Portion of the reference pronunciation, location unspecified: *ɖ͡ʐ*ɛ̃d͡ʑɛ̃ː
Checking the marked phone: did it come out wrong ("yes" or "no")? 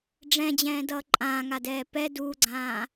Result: no